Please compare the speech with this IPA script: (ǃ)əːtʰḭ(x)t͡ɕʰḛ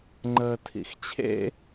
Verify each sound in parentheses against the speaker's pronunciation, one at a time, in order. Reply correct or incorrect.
incorrect: ŋ͡ǃ, correct

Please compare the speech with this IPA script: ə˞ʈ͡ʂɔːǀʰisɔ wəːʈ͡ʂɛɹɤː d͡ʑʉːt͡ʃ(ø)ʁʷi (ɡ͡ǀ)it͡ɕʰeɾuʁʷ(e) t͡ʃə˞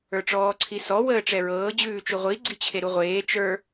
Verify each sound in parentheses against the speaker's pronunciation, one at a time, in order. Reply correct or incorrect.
incorrect: u, correct, incorrect: eː

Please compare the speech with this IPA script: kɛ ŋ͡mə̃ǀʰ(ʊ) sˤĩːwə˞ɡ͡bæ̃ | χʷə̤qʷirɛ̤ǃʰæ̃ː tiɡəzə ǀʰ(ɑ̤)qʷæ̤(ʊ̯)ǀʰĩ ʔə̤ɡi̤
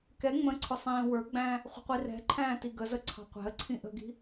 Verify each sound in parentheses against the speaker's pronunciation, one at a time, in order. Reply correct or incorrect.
correct, correct, incorrect: ə̯

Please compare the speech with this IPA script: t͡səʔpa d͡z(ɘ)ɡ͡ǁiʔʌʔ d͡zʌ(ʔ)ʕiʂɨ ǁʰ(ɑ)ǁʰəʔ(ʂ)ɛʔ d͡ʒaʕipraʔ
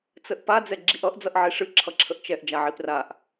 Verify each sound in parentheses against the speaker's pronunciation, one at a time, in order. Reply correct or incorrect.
incorrect: ɛ, correct, incorrect: ʌ, incorrect: t͡ʃ

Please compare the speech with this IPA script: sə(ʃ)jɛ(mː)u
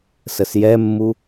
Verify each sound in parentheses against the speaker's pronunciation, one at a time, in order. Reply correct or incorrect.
incorrect: s, correct

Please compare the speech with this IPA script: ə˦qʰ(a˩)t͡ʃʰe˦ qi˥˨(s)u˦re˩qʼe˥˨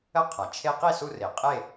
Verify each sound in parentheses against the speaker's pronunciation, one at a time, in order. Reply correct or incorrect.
correct, correct

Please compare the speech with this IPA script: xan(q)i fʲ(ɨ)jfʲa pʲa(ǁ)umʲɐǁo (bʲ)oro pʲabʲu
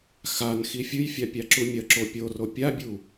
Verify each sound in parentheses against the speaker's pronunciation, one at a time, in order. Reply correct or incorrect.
incorrect: x, correct, correct, incorrect: pʲ

